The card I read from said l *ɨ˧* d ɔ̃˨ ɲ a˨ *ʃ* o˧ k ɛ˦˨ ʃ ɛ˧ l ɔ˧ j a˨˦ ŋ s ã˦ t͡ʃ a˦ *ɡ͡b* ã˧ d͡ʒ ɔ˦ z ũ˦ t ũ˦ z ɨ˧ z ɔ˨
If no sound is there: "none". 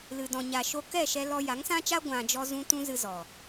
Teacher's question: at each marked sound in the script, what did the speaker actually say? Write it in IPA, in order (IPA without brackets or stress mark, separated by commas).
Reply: ɨ˨, ʃ, ɡʷ